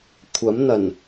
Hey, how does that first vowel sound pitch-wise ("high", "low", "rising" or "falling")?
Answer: rising